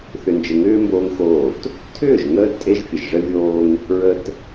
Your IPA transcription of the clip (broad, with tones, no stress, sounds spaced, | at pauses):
θ ʏ˨ n d͡ʒ ə˨ ŋ ʏː˦ m b oː˦ ŋ x oː˦˨ t | tʰ ʏː˦˨ ʒ ŋ əː˦ d tʼ e˦ ʒ fʲ ə˨ ʒ ʐ ə˦ vʲ oː˦ ŋ | ɹ ə˨ t